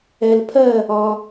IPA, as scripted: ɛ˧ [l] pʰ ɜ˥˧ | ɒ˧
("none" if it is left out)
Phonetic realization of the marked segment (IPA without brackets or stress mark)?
l